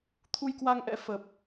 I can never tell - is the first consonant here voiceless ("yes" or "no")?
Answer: yes